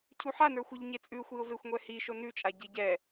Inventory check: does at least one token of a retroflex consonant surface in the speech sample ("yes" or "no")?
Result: no